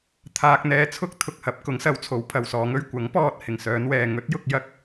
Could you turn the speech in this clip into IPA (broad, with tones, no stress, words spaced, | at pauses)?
t̪ʰaː˨k̚n̪ɛː˨t͡sʰʊ˧k̚ t̪ʰʊ˧k̚hɐ˨˥p̚ kʊ˨˥ŋsɐ˨˥w t͡sʰo˨˥wpʰɐ˨wsɔː˨˧ŋɵ˥ɥ kʷɐ˨˥ŋpɔː˧t̚ hɪ˨˩ŋsœː˨˧nwɛː˨ ŋɵ˨˥t̚jʊ˧k̚ jɐ˥k̚